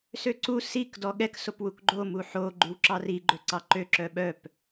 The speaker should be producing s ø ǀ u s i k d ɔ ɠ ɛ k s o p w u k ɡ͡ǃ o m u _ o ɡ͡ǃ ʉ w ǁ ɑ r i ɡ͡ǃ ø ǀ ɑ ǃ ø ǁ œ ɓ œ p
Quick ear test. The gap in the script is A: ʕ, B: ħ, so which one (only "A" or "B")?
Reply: B